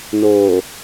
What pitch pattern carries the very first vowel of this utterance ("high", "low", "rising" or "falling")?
low